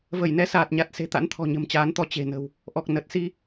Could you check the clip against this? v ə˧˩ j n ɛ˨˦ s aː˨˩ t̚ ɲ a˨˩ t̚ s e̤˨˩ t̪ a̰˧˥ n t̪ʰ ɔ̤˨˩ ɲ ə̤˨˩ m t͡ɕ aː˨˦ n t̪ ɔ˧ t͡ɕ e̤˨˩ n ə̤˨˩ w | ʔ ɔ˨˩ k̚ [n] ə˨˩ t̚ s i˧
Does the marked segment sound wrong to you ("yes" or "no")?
no